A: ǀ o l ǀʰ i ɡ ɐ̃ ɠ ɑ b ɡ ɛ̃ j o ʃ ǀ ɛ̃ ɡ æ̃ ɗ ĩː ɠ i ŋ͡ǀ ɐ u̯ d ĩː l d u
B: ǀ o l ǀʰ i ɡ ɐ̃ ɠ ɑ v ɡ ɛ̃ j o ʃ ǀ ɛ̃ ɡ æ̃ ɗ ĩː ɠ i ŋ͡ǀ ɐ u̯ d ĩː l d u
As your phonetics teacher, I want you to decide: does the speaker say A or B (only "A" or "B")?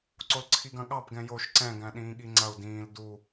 A